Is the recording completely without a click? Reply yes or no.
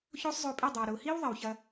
yes